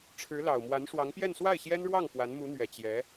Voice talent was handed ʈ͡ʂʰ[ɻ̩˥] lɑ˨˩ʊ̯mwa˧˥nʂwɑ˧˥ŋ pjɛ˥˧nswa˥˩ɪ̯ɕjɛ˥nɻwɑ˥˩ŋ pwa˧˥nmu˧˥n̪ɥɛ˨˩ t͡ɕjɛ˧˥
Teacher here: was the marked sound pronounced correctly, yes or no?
no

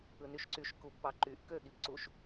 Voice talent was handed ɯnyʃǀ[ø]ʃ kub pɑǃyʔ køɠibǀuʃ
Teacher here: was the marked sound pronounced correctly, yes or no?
no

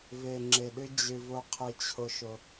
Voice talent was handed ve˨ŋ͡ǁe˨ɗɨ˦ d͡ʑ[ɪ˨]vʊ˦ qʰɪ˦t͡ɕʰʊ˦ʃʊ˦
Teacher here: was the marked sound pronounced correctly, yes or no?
no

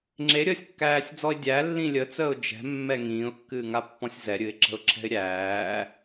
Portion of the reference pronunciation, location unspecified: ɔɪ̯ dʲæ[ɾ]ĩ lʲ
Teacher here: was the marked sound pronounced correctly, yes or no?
no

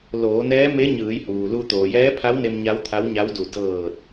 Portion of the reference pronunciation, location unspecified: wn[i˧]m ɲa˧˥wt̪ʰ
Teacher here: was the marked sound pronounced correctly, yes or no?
no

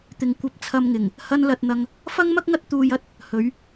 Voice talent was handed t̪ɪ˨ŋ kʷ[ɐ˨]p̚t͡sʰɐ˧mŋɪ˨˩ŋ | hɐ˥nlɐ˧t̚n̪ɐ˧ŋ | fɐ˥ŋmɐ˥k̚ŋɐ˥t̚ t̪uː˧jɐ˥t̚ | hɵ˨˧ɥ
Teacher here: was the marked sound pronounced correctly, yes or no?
no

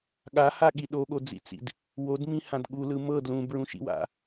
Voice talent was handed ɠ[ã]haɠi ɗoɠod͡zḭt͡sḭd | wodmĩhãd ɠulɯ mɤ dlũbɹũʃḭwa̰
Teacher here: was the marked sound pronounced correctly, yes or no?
no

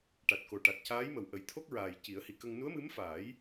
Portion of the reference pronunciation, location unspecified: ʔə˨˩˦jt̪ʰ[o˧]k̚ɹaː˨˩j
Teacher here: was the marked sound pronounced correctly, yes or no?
no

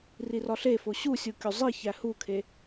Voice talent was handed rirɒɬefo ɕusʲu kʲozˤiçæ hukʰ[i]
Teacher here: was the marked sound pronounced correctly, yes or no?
no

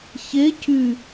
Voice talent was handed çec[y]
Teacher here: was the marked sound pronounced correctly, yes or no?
yes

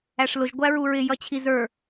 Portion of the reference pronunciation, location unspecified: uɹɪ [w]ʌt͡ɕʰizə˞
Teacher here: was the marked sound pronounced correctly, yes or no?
no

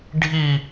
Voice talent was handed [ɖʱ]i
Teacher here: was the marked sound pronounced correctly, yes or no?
yes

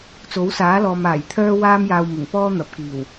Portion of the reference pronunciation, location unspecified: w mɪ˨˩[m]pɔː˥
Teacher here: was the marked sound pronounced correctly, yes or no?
no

